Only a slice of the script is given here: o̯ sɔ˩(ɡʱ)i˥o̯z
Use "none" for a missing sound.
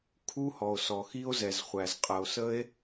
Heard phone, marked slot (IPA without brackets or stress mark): x